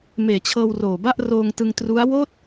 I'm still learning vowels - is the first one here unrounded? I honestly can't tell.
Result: yes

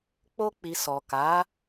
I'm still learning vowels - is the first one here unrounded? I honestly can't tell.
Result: no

